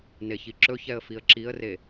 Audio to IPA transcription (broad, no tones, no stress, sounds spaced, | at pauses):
n e ç i ǁ ɵ ç ɛ ə̯ f i ə̯ ǁ i ə̯ r e